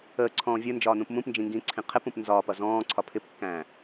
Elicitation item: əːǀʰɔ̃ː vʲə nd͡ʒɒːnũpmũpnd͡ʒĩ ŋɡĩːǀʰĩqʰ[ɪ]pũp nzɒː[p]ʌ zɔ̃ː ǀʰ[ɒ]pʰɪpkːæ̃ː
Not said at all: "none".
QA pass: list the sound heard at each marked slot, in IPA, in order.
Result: ɪ, p, ɒ

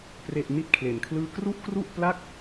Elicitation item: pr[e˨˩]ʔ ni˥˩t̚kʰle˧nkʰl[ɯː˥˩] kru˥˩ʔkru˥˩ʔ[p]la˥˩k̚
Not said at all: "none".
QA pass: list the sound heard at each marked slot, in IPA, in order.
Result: e˥˩, ɯː˥˩, p

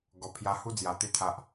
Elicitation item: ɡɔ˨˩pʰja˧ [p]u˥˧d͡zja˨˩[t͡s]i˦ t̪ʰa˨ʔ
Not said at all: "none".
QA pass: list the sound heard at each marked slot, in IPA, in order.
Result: h, t̪

